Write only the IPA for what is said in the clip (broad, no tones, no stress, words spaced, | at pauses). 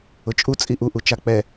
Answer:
ʊt͡ʃʼu t͡sʼiʔuʔut͡ʃa k͡pɛ